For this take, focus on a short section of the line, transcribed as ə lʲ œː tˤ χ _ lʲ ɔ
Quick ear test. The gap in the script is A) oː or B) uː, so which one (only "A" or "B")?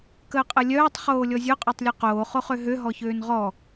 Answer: A